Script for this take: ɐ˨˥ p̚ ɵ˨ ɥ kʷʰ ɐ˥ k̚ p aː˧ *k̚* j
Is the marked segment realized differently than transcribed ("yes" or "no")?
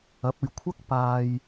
yes